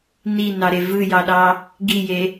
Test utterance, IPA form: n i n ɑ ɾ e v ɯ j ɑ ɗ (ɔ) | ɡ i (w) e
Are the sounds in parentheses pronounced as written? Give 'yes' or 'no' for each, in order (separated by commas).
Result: no, no